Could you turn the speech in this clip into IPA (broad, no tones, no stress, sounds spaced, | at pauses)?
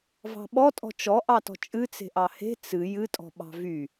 v ɑ̤ ɓ ɔ tʼ ɔ̤ t͡ʃ ɔ ʔ ɑ t ɔ̤ t͡ʃʼ ɨ t͡s e̤ ʔ ɑ h e̤ t͡s ɨ j ɨ tʼ ɔ̤ ɓ ɑ̤ v y